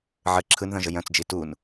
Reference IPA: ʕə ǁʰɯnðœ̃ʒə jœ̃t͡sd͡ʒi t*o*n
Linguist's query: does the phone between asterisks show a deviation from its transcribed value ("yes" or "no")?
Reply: yes